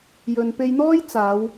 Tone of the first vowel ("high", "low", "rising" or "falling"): low